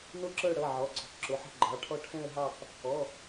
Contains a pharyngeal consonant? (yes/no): yes